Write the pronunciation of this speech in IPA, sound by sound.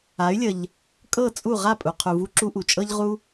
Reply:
a˩˥ y̯ lʲ ə˩ ʎ | kʼ ɤ˥˩ t͡sʼ u˥˩ ʁ a˥˩ pʼ u˩ qʰ u˩ v u˧ ǁ u˥ ʔ u˩ t͡ʃʼ ɤ˥ ʎ ʁ u˥

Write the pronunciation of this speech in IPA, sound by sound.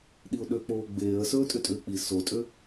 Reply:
ɗ i ʊ̯ ɗ ø k͡p oː ɡ͡b eː ə̯ s ɵː tʼ ʏ tʼ ʏː k͡p i s o tʼ ø

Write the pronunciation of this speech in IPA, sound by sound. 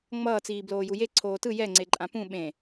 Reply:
ŋ͡m ʌː t͡s iː b l oː j u j e ǀʰ oː t ɯ j ɛ ŋ͡ǀ e ǃʼ ã p ũ ɓ ẽ

